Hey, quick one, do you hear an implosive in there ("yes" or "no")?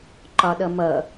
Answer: yes